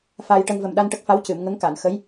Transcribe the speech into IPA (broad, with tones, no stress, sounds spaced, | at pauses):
f aː˧ j ʈ ə˧ ŋ v ə˨˩ m ɗ a˧ n ʈ ə˦˥ k̚ f a˧˥ w c ɨ˨˩˨ m ŋ ə˧˥ ŋ k a˨˩˨ n x ə˧˥ j